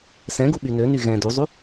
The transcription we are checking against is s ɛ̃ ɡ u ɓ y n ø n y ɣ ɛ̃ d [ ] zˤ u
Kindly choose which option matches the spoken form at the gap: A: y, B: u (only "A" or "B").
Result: B